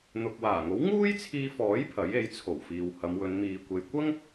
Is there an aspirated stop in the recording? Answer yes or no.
yes